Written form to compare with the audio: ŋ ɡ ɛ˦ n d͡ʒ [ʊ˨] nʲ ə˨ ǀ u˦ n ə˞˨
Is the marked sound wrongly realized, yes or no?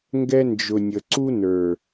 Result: no